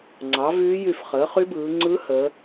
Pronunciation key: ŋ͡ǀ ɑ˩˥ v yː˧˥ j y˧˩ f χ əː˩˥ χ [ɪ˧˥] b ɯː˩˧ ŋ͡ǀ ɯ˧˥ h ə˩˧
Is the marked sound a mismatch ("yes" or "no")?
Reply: yes